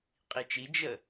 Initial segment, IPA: qʼ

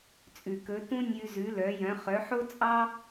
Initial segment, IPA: t͡sʼ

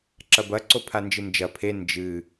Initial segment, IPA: ǁ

